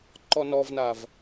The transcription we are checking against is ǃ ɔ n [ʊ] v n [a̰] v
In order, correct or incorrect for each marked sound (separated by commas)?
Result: incorrect, incorrect